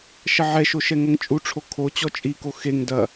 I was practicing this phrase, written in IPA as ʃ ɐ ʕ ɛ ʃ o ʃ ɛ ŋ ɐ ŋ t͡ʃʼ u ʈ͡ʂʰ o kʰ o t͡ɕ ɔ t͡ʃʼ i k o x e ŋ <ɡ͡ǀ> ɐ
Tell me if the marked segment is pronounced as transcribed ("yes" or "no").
no